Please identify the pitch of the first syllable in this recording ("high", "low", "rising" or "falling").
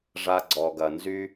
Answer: high